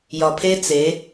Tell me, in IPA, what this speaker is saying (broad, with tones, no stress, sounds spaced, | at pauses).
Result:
j ɒ˨ pʰ e˦ t͡s e˨˦